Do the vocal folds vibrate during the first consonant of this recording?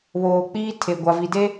yes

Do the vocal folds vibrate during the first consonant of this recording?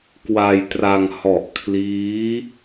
no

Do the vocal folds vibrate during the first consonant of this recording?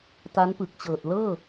no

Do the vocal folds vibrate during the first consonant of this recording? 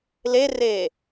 yes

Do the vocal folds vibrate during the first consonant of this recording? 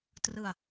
no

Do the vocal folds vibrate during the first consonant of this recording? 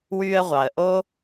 yes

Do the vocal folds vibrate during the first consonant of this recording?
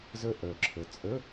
yes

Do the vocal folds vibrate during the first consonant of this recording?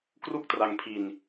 no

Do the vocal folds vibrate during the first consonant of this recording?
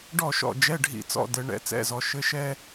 yes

